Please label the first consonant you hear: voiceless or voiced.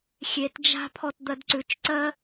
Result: voiceless